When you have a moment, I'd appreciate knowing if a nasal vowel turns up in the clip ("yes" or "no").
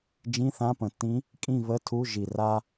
yes